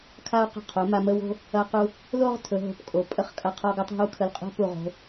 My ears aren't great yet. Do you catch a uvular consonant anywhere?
yes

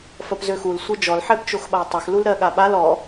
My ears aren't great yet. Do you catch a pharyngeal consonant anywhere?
yes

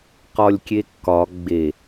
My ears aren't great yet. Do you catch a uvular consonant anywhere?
yes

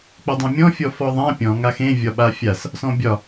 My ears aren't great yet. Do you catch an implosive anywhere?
yes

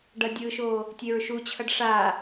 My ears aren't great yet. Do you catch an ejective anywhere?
no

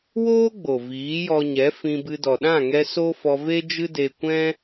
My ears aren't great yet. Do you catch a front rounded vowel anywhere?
no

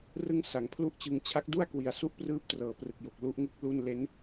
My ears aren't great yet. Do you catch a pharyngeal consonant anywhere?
no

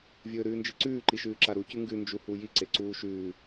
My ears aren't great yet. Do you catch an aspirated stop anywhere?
no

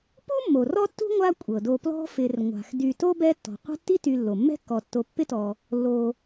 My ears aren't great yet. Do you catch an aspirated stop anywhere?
no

